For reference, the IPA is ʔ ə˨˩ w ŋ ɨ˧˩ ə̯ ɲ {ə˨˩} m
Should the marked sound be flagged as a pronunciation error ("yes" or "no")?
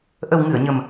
no